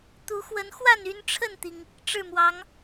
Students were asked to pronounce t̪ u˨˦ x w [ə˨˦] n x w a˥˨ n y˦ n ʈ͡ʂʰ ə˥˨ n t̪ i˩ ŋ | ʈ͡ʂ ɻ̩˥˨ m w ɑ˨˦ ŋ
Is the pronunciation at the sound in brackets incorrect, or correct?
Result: correct